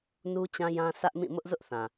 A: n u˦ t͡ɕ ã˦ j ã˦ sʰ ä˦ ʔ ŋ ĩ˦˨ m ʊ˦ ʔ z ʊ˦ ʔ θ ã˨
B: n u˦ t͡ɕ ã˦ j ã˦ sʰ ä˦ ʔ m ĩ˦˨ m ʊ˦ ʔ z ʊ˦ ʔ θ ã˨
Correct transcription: B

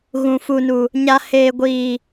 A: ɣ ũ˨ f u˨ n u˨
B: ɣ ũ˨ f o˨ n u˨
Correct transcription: A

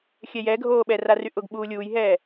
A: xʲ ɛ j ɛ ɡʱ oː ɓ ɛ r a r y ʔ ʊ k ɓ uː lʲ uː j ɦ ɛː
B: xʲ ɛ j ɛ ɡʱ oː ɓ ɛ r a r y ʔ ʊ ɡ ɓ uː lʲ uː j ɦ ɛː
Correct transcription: B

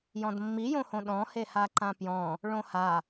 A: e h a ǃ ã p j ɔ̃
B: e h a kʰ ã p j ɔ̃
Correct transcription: A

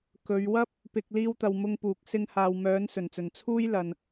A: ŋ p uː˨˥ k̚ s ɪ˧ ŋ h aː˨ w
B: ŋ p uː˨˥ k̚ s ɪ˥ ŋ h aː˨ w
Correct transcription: A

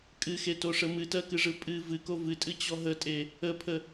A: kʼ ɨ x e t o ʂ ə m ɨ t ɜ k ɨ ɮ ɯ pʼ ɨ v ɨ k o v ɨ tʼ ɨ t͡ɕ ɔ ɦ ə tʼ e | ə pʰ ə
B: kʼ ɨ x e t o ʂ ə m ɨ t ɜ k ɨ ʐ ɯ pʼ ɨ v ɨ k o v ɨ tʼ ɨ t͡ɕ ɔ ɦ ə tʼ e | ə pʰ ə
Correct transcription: B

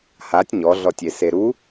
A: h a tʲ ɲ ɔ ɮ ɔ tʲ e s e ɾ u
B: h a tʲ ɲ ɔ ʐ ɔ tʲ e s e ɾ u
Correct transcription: A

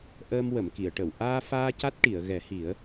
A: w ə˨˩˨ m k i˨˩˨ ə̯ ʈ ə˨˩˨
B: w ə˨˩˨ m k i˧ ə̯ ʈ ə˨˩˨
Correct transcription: A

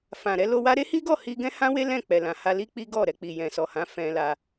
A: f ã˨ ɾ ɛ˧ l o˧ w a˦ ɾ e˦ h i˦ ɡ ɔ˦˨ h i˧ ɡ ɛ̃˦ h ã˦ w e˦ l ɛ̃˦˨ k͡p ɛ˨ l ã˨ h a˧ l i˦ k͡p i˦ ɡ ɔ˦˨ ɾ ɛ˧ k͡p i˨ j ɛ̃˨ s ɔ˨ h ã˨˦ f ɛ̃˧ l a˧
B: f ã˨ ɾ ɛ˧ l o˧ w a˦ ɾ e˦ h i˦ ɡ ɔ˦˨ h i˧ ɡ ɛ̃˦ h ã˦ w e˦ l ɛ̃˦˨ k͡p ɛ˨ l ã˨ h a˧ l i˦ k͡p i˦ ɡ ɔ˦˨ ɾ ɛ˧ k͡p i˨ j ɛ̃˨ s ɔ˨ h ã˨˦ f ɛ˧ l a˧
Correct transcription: A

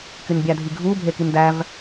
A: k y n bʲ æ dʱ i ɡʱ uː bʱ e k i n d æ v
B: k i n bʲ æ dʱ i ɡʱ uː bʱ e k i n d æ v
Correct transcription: A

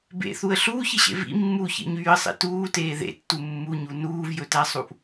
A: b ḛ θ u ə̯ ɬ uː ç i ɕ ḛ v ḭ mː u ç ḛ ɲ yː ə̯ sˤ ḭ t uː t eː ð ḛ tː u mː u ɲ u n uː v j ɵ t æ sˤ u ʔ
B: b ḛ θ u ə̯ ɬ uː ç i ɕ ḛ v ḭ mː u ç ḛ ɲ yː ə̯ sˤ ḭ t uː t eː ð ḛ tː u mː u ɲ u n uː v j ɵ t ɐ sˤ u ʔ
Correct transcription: A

